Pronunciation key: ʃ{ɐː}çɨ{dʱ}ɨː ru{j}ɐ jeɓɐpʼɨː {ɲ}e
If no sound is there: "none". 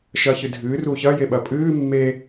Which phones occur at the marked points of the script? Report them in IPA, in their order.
ɐː, dʱ, ç, mː

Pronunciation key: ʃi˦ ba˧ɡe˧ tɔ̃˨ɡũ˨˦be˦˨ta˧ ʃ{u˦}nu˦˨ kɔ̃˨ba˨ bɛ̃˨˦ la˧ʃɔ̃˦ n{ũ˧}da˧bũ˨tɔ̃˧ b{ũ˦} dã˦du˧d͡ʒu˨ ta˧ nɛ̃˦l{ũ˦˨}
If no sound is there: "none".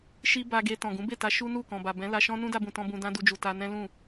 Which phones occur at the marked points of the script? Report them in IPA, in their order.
u˦, ũ˦, ũ˧, ũ˦˨

